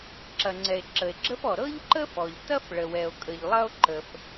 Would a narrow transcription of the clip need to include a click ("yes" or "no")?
yes